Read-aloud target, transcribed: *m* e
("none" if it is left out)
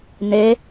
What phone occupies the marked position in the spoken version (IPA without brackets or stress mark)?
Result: n